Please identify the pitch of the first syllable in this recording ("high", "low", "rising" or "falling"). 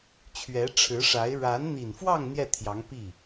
rising